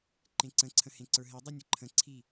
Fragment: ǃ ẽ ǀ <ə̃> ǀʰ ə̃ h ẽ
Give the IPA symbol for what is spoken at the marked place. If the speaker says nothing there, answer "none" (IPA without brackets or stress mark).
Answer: ə̃